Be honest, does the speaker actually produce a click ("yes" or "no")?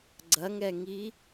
yes